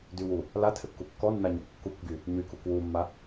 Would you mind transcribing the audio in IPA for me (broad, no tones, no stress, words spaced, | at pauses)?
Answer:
dywu | latʰɘkːu kːɔnːaɲɔɡ kːukɡy | ɲykuk wumːa